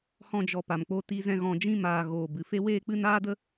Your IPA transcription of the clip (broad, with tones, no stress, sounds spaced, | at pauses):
h ɔ̃˧ d͡ʒ ɔ˨ p a˨ m k͡p o˧ t i˧ z ɛ̃˧ ɣ ɔ̃˨ d͡ʒ ĩ˧ m aː˨ ɣ oː˨ b ɨ˨ f e˦ w eː˦ k͡p ɨ˦ n aː˦ d ə˦